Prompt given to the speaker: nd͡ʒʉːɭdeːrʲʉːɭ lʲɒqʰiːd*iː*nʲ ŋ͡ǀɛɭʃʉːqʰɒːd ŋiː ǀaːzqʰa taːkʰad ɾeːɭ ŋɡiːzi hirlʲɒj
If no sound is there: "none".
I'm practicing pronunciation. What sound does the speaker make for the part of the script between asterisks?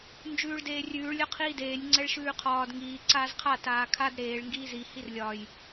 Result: eː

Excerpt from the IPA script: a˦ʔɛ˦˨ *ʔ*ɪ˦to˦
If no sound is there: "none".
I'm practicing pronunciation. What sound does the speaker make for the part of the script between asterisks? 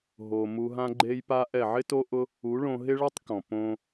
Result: ʕ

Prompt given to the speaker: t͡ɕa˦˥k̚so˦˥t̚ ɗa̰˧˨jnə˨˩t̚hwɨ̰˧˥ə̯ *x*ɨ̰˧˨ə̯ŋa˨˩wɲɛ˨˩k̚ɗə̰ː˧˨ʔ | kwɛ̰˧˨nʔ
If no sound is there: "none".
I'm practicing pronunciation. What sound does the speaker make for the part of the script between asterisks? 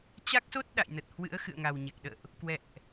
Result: x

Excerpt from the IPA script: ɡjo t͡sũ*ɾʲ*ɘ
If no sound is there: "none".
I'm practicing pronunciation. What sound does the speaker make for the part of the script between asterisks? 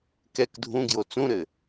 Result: ɾ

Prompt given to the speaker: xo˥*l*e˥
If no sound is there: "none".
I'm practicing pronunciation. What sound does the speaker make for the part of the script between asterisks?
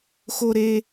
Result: ɾ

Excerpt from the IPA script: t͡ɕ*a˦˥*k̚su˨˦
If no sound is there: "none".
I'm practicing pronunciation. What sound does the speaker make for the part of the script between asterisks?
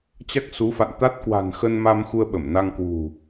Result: a˦˥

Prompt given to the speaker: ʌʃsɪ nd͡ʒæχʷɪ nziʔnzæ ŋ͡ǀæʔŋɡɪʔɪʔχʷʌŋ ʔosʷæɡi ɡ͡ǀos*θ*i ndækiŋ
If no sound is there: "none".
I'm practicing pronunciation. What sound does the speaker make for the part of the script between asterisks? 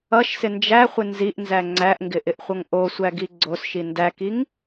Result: ʃ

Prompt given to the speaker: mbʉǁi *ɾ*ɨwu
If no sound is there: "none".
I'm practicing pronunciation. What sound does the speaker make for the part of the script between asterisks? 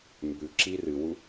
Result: r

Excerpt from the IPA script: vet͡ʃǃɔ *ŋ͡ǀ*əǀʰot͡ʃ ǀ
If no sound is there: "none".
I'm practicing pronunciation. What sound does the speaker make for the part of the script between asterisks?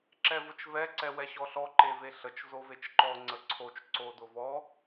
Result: ŋ͡ǀ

